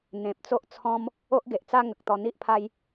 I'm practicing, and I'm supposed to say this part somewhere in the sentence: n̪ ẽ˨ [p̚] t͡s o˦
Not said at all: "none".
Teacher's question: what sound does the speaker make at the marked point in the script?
p̚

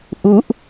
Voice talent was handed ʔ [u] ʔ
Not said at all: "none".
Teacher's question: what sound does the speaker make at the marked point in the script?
u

